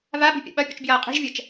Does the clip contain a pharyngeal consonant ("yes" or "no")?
no